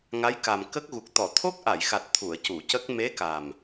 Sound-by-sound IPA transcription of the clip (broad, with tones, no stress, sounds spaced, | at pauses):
ŋ a˧˥ j k a˨˩ m k ə˦˥ k̚ ɣ u˨˩ k̚ t̪ ɔ˨˩˨ t̪ʰ o˦˥ k̚ ʔ a˨˩˨ j x a˨˩ t̚ t̪ʰ u˨˩˨ ə̯ c u˨˩˨ c ə˦˥ k̚ m e˧˥ k a˨˩ m